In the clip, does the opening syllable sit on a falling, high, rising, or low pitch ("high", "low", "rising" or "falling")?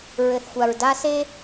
low